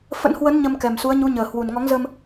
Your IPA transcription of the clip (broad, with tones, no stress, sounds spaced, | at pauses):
f ə̰˧˥ n h w ə˨˦ n ɲ ə˧ m k ɛ˨˩ m s u˨˦ ə̯ ɲ u˨˦ ɲ əː˨˩ h w u˨˩ n ŋ ɔ˨˦ ŋ z ə˧ m